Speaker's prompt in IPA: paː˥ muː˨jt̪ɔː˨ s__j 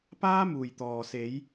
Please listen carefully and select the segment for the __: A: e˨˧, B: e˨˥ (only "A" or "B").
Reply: A